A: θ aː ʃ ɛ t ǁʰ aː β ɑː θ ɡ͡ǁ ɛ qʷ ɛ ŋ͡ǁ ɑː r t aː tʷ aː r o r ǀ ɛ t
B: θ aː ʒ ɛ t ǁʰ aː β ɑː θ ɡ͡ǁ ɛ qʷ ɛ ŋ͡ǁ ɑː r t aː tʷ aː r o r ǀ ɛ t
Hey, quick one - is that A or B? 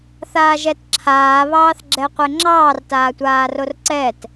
B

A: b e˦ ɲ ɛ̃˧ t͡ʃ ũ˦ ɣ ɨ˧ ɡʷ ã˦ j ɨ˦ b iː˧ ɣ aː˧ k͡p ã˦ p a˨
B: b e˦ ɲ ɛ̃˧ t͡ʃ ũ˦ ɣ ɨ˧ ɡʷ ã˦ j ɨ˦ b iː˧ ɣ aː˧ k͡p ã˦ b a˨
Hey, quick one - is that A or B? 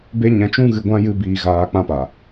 A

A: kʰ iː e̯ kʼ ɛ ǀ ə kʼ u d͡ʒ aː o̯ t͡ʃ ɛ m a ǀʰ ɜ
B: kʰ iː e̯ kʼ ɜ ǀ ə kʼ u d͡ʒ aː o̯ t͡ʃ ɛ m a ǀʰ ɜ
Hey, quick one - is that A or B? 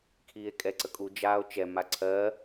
A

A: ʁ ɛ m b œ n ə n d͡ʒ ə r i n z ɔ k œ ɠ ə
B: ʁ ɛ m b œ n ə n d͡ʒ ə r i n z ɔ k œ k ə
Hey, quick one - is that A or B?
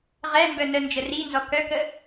B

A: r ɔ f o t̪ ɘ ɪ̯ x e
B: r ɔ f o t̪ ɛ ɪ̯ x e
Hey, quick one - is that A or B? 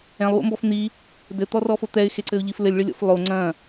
B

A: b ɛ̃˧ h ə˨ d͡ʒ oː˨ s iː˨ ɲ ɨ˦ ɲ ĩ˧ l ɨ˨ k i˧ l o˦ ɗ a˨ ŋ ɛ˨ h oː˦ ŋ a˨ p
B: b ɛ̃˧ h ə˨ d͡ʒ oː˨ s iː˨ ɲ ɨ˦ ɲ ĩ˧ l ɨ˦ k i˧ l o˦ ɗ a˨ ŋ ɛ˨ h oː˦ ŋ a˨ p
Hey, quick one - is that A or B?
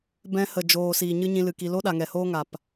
A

